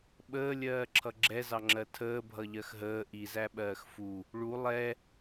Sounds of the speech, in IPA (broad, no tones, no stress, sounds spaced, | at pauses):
ɓ əː lʲ ɜː ǁʰ ʌ ɡ͡ǁ ɛ z ɑ ŋ͡ǁ ɜ tʰ əː bʱ ʌ ʎ ɜ x ɦ əː ʔ i z æ ɓ ɜː x f u | ɭ u lˠ ɛ